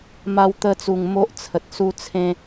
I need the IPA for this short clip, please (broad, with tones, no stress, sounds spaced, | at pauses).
m a˧ w t̪ ə˧ t͡s u˨˩ ŋ m o˦ ʔ t͡sʰ ə˨ t̚ s u˦ t͡sʰ ẽ˦